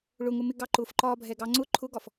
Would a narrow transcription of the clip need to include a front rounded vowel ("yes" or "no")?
no